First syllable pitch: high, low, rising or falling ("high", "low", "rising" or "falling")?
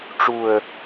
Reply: low